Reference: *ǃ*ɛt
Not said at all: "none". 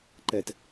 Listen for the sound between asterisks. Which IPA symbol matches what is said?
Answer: ǃ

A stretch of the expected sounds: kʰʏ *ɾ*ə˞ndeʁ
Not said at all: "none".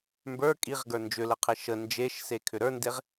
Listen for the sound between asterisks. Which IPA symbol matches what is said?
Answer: ɾ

